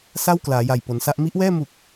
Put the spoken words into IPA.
s a˥˩ w k l aː˩˦ j a˨˩ j p o˩˦ n s a˦˥ ʔ m i˦˥ ʔ w ɛː˥˩ m u˨˩ k̚

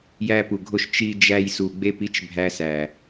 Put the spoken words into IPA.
j æ˧ p u˨ ɡʱ o˧ ʃ t͡ʃ i˧ d͡ʒ æ˧ j s u˨ ɡ͡b e˧ p i˦ t͡ʃ bʱ æ˧ s æ˨

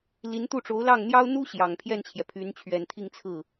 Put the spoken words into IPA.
l i˧˥ n t̪ u˥˩ ʈ͡ʂ o˧˥ ʊ̯ l ɑ˥˩ ŋ n̪ j ɑ˥ ʊ̯ n̪ u˥ ɕ j ɑ˨˩ ŋ pʰ j ɛ˥˩ n t͡ɕʰ j ɛ˩ pʰ y˧˥ n t͡ɕʰ ɥ ɛ˨˩ n t̪ʰ i˥˧ ŋ t͡sʰ ɹ̩˥˩

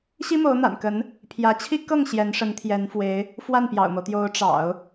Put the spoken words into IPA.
ɕ i˥ m o˧˥ ʊ̯ n̪ a̰˨˩ n k ə˧˥ n | pʰ j ä˧˥ t͡ɕʰ i˥ k ɤ˥˩ ŋ ɕ j ɛ˧˥ n ʂ ə˧˥ n t̪ʰ j ɛ˧˥ n f w e˧˥ ɪ̯ | f w a˥˩ n p j ɑ̰˨˩ ʊ̯ m o˦ ʊ̯ t̪ j o˧˥ ʊ̯ ʈ͡ʂ ɑ̰˨˩˦ ʊ̯

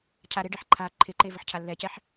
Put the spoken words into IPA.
cʰ a ɾ ɪ ɖ ɛ ħ ǃʰ a ǃʰ ɪ ǃ e v ə ħ cʰ a lː ɛ c ɛ ħ

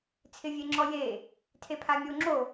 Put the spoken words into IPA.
t͡sʰ ɪ vʲ e ŋ͡ǁ ɔ j e | tʰ e pʰ a mʲ o ŋ͡ǁ o

